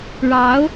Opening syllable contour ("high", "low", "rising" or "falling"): rising